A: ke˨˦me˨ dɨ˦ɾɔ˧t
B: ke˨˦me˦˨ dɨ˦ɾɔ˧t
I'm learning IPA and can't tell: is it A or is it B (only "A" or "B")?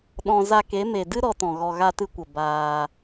A